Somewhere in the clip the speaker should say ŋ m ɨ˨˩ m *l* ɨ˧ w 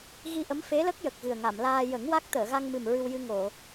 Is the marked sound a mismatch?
yes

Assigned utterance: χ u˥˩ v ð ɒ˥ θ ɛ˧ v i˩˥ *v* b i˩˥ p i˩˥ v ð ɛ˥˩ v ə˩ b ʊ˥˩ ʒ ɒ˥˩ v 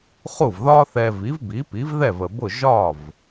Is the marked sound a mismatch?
no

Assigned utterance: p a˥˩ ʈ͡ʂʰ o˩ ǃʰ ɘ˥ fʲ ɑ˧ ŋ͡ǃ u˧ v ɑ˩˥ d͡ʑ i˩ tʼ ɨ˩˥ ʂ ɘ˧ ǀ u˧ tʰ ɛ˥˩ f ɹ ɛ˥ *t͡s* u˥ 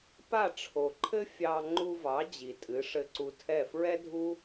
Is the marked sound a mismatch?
yes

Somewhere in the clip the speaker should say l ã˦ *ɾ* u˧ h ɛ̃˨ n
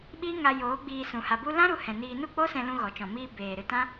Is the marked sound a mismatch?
no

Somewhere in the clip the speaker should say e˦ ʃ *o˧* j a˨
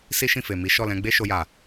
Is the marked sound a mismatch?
no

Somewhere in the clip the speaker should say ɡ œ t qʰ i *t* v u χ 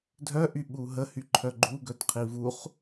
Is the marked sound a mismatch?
yes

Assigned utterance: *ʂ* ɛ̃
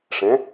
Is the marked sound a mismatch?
no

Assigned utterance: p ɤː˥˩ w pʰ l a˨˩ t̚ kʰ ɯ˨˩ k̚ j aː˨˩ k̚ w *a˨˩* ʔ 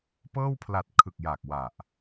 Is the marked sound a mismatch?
no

